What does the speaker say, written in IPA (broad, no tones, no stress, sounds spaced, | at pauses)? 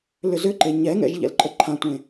l ʏ z ʏ ǃ e ɲ ɛ ŋ ɛ̰ ʒ ʎ ɛ̰ l ǃʼ ə ǃʰ ã tʷ ẽ